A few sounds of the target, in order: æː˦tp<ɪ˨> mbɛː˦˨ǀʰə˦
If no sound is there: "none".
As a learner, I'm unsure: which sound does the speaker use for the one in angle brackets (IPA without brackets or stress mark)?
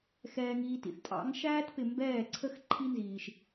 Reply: ɪ˨